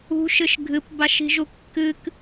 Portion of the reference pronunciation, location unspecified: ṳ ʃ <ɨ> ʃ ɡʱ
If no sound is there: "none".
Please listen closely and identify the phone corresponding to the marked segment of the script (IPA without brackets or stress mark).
ɨ